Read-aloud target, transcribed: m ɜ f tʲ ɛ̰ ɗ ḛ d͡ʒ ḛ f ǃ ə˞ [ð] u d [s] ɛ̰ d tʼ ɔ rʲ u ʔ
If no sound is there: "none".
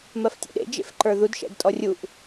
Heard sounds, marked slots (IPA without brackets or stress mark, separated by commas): ð, ʃ